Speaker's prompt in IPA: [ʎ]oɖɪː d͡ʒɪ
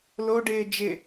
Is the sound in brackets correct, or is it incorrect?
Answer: incorrect